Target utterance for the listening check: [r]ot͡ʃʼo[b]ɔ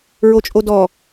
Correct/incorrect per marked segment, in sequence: incorrect, incorrect

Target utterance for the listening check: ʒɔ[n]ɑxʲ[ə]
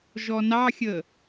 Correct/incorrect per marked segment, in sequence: correct, correct

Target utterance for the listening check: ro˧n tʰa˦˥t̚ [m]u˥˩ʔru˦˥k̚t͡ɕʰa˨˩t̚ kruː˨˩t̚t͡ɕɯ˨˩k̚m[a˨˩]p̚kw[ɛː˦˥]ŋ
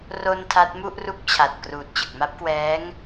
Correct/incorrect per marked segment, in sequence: correct, incorrect, correct

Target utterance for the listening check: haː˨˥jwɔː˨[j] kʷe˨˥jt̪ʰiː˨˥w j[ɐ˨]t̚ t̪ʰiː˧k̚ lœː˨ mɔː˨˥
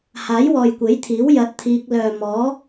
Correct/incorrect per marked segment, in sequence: correct, incorrect

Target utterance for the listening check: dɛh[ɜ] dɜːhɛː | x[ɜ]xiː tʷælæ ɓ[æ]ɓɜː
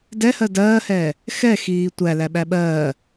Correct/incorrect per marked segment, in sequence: correct, incorrect, correct

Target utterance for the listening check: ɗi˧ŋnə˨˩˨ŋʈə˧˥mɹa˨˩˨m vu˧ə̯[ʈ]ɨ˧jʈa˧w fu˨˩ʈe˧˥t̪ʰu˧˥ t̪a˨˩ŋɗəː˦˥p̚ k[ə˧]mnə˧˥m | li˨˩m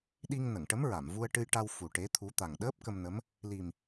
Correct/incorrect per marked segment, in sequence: correct, correct

